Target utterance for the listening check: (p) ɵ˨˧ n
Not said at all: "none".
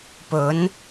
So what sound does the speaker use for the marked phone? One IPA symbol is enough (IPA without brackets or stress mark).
p